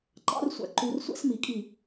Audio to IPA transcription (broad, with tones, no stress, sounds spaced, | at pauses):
ǃ ɑ̰˦ r sʷ æ̰˨ ǃ u˦ r sʷ æ̰˦ s m i˨ kʼ i˦˨